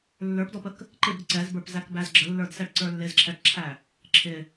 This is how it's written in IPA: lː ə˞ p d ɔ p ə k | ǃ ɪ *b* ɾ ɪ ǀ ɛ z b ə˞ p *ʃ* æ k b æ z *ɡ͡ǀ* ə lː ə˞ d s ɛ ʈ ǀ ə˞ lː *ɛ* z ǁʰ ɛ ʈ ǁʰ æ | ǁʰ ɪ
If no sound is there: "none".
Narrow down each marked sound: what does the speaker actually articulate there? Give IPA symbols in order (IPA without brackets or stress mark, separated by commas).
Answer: b, z, ɡ͡ǁ, ɪ